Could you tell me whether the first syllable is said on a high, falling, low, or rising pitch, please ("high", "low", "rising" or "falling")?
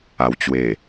low